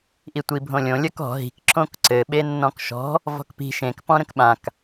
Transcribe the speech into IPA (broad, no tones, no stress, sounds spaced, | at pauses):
ʔ i tʷ i bʱ õ lʲ õ lʲ ə k ɔ̤ ɦ i̤ k ǁ õ k ǀ ɘ ɓ e nː ɔ̃ k ʃ ɔ̤ | v ɔ̤ k p i̤ ʃ ẽ k p ɔ̃ ɾ ə̃ k ɓ ã k